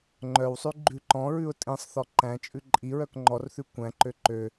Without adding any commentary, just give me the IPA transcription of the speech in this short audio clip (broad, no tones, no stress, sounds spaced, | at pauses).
ŋ͡ǃ œ w sˤ ʉ ɡ͡ǃ ʉ ǃ ɔ̃ ɹ ʉ ʊ̯ tʼ ĩ sˤ θ ɔ ǃ æ̃ t͡ʃʼ ʉ ǃʼ i ɹ œ k ŋ͡ǃ ɔ r θ ʉ kʷ æ̃ ǃ ø ǃ ø